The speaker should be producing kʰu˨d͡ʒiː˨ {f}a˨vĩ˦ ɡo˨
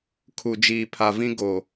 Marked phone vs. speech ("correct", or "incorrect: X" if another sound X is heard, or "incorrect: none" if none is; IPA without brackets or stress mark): incorrect: pʰ